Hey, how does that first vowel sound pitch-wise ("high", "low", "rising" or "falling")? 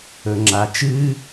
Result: low